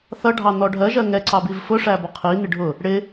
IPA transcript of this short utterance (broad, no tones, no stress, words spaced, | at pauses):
θʌ ɖʱɑn̪ɔɖʱɜʒɜ ŋɛ ǀɑbivfʊʂæ bɔqʰin̪ɪ ɖʱʊ | ɽɪ